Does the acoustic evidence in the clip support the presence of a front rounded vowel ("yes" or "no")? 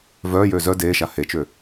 yes